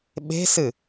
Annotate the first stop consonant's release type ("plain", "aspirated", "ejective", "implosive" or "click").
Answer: implosive